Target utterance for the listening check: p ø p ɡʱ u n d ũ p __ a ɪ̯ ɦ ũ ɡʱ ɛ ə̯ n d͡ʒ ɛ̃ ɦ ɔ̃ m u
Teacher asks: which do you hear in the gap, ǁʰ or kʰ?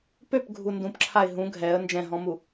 ǁʰ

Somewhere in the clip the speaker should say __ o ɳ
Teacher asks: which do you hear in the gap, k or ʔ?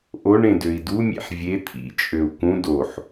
ʔ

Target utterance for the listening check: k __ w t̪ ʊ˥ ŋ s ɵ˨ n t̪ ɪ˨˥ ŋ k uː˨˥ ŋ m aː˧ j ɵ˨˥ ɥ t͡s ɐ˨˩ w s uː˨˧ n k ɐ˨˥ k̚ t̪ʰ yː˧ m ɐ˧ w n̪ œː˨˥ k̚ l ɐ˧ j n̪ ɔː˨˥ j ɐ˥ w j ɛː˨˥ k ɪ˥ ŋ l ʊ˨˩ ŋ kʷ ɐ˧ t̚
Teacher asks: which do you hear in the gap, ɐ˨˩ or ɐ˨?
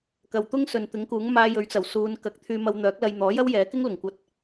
ɐ˨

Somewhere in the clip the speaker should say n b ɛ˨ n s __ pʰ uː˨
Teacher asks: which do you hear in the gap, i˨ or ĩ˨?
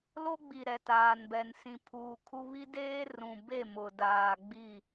ĩ˨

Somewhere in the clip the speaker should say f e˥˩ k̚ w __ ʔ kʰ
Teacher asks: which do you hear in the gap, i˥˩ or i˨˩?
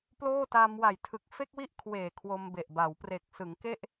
i˥˩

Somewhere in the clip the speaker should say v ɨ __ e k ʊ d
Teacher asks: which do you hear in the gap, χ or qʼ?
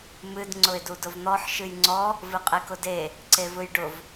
qʼ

